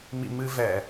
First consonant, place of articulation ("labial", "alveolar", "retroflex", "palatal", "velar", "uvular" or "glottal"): labial